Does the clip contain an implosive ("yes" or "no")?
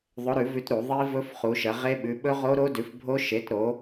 yes